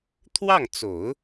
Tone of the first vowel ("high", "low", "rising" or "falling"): falling